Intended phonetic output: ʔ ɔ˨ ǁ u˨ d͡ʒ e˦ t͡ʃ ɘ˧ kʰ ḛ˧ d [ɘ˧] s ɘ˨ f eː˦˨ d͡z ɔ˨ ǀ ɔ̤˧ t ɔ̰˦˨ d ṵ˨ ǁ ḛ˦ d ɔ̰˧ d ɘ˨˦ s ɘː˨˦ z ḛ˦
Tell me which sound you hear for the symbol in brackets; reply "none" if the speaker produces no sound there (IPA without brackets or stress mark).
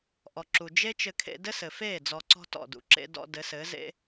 ɘ˦